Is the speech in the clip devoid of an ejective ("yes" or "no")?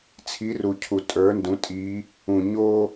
no